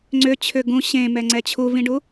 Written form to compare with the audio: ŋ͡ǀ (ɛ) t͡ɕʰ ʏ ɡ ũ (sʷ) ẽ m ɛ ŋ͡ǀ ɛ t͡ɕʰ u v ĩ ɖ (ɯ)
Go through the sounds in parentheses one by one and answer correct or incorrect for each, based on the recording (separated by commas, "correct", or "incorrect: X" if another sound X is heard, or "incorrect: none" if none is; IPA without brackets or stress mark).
incorrect: ʏ, incorrect: ɕ, incorrect: u